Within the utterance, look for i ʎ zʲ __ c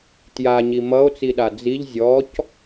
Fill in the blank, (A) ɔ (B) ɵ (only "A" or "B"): A